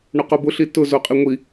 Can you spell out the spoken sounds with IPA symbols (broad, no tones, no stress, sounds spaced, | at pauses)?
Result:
ɳ o q o b ʊ ɬ i t ʊ z o qʼ i ŋʷ i